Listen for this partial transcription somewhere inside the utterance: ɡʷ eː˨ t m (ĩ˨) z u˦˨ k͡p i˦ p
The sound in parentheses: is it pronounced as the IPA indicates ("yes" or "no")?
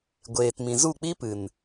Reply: yes